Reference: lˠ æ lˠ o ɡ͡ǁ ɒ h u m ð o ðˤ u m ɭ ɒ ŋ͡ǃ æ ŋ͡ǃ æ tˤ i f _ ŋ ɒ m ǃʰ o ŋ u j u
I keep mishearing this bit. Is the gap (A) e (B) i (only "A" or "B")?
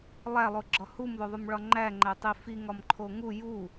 B